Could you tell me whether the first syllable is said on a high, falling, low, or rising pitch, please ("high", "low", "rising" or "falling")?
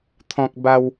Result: low